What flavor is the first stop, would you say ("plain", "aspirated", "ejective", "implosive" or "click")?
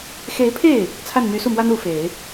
aspirated